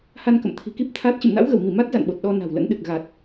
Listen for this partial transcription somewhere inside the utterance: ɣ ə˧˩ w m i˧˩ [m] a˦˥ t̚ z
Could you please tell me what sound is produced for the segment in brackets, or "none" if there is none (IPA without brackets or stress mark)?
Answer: m